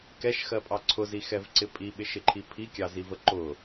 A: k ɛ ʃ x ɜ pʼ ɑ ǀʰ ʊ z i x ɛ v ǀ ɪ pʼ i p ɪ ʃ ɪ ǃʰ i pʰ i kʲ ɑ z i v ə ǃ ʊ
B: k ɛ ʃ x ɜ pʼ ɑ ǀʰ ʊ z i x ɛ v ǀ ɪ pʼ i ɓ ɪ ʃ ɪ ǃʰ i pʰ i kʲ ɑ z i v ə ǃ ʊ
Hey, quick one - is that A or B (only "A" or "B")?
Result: B